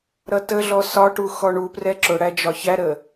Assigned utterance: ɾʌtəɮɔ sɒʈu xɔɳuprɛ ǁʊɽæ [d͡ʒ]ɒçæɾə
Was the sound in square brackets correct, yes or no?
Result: yes